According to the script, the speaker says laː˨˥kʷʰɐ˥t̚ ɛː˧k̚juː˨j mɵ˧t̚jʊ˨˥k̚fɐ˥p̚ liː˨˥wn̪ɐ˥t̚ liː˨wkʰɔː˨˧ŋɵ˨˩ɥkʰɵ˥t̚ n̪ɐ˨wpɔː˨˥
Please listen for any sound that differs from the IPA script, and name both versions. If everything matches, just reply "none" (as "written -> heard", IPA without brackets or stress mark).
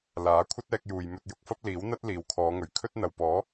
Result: none